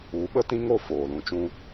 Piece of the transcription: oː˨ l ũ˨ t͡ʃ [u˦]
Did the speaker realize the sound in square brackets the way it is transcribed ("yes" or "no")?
no